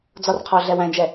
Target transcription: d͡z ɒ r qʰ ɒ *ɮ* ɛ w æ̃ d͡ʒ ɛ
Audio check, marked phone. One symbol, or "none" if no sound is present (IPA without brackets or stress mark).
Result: ɮ